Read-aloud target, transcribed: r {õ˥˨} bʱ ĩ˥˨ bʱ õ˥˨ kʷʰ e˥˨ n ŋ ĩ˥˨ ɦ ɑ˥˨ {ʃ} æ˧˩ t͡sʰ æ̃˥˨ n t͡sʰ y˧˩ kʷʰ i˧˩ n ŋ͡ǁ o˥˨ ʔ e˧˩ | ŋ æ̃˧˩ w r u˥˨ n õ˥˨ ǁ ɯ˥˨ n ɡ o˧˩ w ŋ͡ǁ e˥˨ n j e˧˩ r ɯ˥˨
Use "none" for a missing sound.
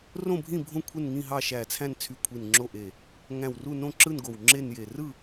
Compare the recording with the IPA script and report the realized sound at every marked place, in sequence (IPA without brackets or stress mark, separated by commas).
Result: õ˥˨, ʃ